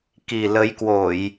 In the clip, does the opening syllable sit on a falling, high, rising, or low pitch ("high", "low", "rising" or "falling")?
low